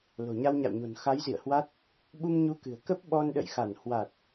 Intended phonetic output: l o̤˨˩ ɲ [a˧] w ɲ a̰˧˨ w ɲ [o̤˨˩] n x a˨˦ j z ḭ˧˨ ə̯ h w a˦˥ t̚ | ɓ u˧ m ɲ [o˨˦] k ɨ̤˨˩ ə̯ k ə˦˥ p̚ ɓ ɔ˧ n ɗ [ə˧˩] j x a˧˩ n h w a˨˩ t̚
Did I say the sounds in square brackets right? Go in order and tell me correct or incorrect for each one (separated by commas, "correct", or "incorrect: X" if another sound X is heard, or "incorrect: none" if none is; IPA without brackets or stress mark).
correct, correct, incorrect: u˨˦, incorrect: ə̰˧˨